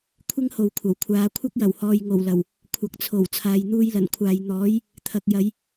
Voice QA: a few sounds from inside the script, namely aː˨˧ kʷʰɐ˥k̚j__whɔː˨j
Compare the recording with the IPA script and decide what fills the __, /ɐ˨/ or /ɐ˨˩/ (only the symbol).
ɐ˨˩